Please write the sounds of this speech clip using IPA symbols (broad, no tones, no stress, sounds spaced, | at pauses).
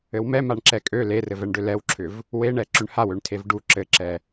ɘ w m ɛ m a ɳ ǁ ɛ kʼ ø l e r ɘ v ɛ ɳ ɖ ø l ɛ w ǁʰ ʏ v | w e ɳ ɛ ǁ ʏ ɳ h a w ø ɳ tʰ e v ɖ u ǁ ɘ ǁ ɛ